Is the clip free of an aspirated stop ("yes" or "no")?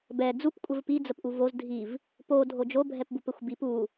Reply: yes